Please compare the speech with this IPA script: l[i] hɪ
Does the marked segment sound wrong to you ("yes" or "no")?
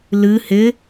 yes